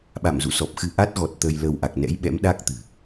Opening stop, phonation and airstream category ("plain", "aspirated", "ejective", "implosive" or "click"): implosive